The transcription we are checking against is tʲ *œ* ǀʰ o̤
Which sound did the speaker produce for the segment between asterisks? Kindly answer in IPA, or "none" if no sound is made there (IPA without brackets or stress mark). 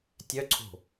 œ